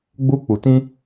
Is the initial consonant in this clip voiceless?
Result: no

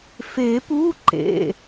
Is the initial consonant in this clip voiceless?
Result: yes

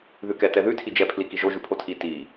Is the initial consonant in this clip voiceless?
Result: no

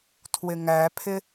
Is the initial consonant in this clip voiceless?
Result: yes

